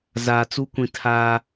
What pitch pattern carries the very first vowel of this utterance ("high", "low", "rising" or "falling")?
low